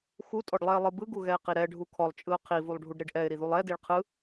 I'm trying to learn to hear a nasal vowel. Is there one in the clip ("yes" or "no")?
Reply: no